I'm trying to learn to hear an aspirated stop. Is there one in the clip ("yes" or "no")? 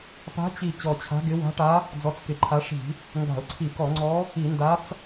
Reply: yes